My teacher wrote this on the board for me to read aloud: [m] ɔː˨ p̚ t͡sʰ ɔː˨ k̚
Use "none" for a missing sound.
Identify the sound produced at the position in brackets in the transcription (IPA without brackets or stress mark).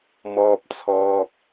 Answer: m